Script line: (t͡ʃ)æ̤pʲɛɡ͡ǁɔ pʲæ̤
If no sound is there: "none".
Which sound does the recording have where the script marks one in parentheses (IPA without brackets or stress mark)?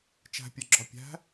t͡ʃ